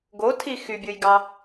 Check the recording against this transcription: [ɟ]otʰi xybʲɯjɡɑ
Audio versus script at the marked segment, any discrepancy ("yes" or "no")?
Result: yes